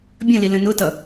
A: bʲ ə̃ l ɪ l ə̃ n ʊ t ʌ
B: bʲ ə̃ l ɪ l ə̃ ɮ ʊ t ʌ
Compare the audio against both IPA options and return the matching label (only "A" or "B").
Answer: A